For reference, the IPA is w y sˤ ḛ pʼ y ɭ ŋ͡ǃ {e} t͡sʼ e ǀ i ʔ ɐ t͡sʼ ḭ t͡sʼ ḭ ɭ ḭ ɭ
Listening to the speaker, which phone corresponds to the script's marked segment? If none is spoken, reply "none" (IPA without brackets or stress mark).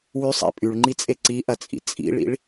i